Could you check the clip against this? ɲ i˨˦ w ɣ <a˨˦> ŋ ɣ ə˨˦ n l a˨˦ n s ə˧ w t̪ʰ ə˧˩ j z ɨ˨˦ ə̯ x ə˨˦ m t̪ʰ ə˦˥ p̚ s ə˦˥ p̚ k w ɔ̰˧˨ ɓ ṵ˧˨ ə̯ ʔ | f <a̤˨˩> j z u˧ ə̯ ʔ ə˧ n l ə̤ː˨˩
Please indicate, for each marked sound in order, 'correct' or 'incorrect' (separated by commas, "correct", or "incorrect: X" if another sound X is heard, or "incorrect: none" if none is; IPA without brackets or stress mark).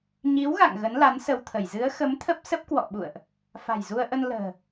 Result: incorrect: a̰˧˨, correct